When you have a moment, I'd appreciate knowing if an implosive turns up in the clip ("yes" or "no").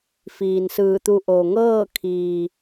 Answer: no